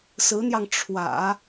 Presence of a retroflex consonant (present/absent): present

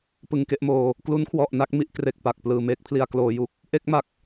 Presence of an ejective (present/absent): absent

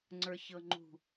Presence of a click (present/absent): present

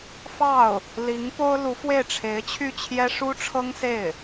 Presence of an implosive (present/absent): absent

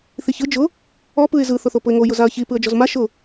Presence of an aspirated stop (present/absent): absent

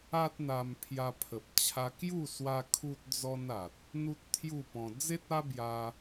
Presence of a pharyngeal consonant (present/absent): absent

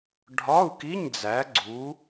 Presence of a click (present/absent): present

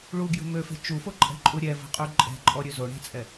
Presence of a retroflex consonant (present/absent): present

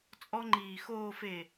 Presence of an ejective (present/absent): present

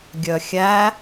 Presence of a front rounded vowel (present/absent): present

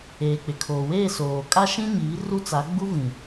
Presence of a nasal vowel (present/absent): present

